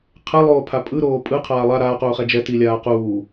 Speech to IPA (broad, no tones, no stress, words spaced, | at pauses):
qʰɛlˠoːpʰa pʼɯɾoː pʼɯqʰaː lˠa ɾaːquːχɛ d͡ʒɛtilʲaː quː